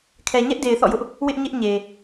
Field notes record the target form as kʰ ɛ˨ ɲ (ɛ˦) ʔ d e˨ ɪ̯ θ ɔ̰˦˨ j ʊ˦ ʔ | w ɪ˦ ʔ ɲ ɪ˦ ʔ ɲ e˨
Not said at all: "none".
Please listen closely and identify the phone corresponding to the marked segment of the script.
ɛ˦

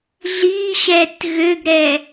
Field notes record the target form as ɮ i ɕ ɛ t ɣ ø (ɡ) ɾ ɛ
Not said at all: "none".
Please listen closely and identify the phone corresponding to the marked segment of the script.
ɡ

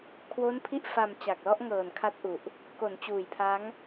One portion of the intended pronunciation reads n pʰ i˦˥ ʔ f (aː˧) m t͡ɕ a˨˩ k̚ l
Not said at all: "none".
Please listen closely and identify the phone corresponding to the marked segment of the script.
a˧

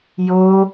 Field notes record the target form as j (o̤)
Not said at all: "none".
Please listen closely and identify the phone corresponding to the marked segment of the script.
o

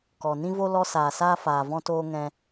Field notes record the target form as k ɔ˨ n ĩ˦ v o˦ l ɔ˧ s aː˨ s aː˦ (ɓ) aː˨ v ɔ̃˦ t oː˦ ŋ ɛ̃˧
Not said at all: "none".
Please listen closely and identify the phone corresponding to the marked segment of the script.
f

